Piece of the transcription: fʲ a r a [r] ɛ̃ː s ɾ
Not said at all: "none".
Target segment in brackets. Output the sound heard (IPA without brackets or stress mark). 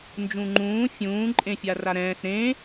ɾ